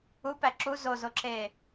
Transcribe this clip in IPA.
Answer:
upæ ǁu zozoǁeː

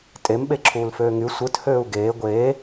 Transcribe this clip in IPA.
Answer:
tʼem ɓeǁʰuːlføːŋy sʷɯt høːu̯ɡeː ɡʷeː

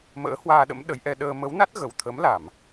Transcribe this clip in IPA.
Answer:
mə̰ː˧˥hwaː˧ɗə̰˧˥m ɗə˨˦jʔɛ˧ ɗəː˧ mə˨˦wna˦˥t̚ ɣə˨˩wt̪ʰə˨˦mla˧˩˨m

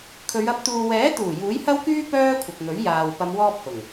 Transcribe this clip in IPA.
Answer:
kʰɵ˨˧ɥɐ˧p̚ t̪uː˨wɛː˨˥t̪uː˨˩ juː˨˥jhɐ˥wkyː˥ pœː˥kʷʰɪ˨k̚ ŋɵ˨˥ɥjaː˨w pɐ˨˧mwɔː˧p̚ hʊ˨˩ŋ

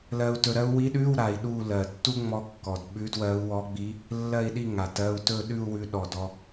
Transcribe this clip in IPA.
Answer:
lɜ˧u̯ tɵ˧ɾɜ˥u̯ wi˧˥ɗʉ˧˥˧w ɾa˧i̯ɗu˥˧ lɜ˨˩tːu˥ ŋ͡mɔ˥kːɔ˨˩d ɓʉ˧˥dwɜ˧˥u̯wɔ˧˥ɡ͡bi˧˥ | lːɜ˥˧i̯ɗi˥˧ ŋa˨˩tɜ˧˥˧u̯ tɵ˥˧ɗʉ˥˧u̯ wʉ˥ ɗɔ˨˩dɔ˧

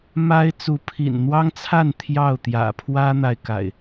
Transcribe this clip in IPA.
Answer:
ma˦ɪ̯ t͡su˨˦pʰḭ˨˩n n̪wɑ˦ŋt͡sʰa˥˨n t̪ʰjɑ˥˨ʊ̯t̪jä̰˨˩ pʰwä˦n̪a˨ɪ̯ka̰˨˩ɪ̯

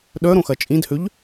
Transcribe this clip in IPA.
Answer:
ɗœɾõxɐ t͡ʃʼĩdhøʎ

